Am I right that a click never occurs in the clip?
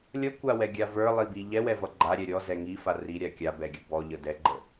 no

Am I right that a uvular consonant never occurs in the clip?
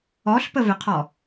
no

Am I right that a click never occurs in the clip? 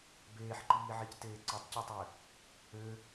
no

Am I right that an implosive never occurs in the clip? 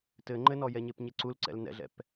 yes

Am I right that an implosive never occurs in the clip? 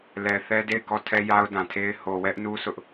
yes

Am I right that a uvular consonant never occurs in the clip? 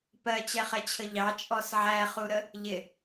no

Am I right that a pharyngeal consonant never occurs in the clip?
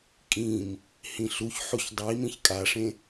no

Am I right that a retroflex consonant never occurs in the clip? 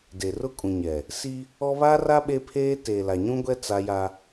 yes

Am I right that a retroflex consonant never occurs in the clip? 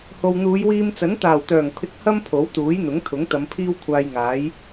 yes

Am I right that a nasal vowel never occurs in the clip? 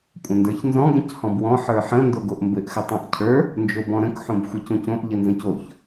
no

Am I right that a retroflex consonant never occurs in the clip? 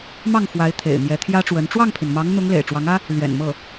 no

